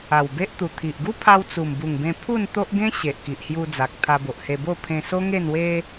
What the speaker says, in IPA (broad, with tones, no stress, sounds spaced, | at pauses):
a˨˩ w b e˦ ʔ t̪ u˨˩ t̪ʰ i˨ ʔ ɡ u˦ pʰ a˧ w t͡s u˨˩ m b u˨˩ ŋ b ẽ˧ pʰ u˥˧ n t̪ o˦ ʔ ɡ ẽ˦ ɕ e˨ ʔ k i˨ ʔ h j u˧ d͡z a˨ k̚ t̪ʰ a˧ b o˨ ʔ h e˧ b o˥˧ pʰ ẽ˧ s o˦ ŋ e˥˧ n w e˦